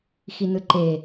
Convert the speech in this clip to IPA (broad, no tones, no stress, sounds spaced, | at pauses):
x i n ɯ ǃ e